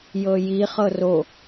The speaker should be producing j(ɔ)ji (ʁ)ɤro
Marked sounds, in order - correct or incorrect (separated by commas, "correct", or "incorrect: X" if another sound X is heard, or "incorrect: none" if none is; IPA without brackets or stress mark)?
incorrect: ɤ, incorrect: χ